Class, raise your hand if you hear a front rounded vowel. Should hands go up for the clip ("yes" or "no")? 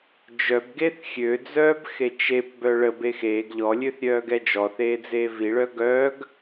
yes